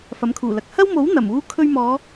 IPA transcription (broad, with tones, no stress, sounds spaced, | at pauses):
f ɐ˨˥ m kʰ uː˨˩ l ɐ˨ k̚ h ɐ˥ w m o˨˥ w n̪ ɐ˨˩ m uː˥ kʰ ɵ˧ ɥ m ɔː˨˧